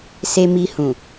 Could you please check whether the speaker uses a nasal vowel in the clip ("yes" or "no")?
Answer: yes